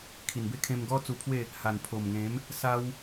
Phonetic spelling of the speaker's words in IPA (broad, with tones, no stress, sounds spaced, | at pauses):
kʰ i˨˩ n b e˦ kʰ ẽ˧ m ɡ ɔ˥˧ t͡s u˧ pʰ w e˥˧ | h a˨˩ n pʰ o˨˩ m ŋ ẽ˨˦ m | s a˦ w